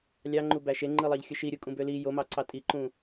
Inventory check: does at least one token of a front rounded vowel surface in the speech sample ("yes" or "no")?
yes